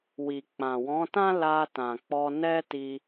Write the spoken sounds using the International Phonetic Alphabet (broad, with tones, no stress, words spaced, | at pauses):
wi˨k͡pã˨wɔ̃˨˦tã˦ la˧tã˨k͡pɔ˧ nɛ˦ti˧